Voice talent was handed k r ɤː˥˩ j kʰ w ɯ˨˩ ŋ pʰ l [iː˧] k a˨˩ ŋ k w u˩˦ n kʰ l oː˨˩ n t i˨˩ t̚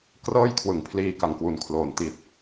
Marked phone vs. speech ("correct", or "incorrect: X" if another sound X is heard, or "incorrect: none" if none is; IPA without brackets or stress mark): correct